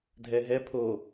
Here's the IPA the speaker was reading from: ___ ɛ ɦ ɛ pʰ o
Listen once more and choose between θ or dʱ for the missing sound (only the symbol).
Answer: dʱ